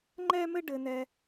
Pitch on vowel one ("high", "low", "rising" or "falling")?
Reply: high